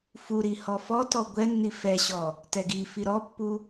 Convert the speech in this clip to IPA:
f u ɾ i h ɔ f ɔ t ɔ ɡʷ ɛ nː i f ɛ ɕ ɔ | t ɛ ɡ i f i ɾ ɔ pː u

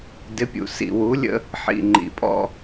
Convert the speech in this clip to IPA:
d ɪ˨˦ pʲ ṵ˨ s ḭ˨ w u˨˦ lʲ ə̰˦ | ħ ḭ˨ ŋ͡ǃ ḭ˨ pʼ ɔ̰˦

